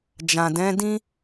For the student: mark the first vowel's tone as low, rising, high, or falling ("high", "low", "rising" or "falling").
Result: low